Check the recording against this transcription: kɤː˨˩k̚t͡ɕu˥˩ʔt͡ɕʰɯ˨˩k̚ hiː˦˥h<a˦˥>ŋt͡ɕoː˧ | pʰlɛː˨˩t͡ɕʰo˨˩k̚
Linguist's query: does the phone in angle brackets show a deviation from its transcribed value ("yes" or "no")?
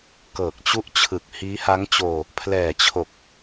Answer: no